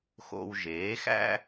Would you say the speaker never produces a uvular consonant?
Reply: yes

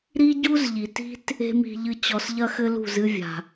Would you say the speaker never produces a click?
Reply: yes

